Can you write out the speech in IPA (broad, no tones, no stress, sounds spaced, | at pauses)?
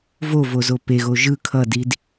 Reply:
v o v o z o p e ɣ o ʒ ɯ kʰ ʌ d i d